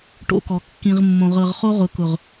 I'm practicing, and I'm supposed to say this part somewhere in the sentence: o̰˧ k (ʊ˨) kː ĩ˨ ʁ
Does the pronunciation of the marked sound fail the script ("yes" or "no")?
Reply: yes